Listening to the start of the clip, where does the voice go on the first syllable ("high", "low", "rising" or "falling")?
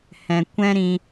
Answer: low